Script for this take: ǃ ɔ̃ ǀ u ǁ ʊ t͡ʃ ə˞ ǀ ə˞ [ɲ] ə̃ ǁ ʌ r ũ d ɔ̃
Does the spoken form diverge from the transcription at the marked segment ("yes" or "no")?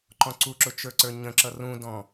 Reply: no